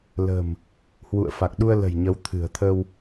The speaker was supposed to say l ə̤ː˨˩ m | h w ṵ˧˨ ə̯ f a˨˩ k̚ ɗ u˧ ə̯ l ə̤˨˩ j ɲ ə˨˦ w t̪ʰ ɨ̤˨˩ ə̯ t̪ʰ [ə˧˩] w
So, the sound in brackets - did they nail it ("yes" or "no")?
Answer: no